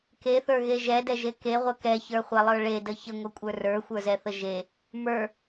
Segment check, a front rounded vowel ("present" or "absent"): absent